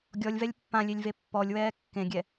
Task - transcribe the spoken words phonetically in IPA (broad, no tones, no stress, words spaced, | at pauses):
ɡʲɔlʲvɛlʲ pːãlʲelʲve pːɔlʲwɛː kːẽɡʲɛ